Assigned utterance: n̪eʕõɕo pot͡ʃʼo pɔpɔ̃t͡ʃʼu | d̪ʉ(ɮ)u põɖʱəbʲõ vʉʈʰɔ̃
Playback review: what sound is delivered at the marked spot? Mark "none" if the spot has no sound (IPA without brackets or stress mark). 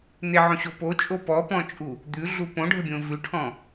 ɮ